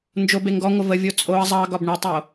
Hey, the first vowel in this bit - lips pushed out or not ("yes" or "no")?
yes